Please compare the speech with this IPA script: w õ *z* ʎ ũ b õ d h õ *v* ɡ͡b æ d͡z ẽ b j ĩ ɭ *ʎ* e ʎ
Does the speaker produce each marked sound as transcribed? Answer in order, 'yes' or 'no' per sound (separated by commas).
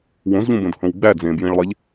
yes, no, no